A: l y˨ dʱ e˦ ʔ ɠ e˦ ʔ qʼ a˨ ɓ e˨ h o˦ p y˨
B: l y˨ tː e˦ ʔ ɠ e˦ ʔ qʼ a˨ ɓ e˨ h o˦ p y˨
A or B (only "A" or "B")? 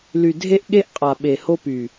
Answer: A